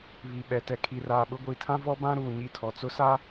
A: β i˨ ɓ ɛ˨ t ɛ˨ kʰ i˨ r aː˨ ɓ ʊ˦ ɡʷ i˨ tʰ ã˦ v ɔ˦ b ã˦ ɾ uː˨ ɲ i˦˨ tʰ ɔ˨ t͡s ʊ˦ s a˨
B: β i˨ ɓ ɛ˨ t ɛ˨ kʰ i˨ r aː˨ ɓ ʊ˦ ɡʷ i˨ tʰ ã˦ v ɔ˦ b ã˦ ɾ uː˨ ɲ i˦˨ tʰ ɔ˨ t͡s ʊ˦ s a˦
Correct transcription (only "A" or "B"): B